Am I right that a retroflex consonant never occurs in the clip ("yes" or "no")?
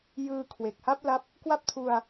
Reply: yes